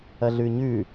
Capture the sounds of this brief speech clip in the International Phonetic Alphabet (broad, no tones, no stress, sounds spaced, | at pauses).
ɐ ɮ ʉ ɲ ʉ